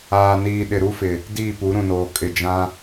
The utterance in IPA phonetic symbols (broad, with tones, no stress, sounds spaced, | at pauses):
aː˨ n iː˨ ɗ ɪ˨ ɾ u˦ f ɪ˨ | d iː˦˨ p u˨˦ ɾ ũ˨ n oː˨ kʼ ɪ˨ d͡ʒ ã˦